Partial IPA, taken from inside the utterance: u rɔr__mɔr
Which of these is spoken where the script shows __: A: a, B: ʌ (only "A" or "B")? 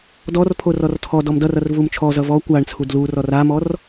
A